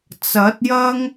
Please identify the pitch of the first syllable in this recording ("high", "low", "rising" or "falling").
rising